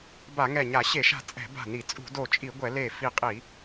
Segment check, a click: absent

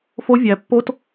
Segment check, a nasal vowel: absent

